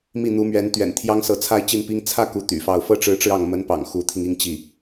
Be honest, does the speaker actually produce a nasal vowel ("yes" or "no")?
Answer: no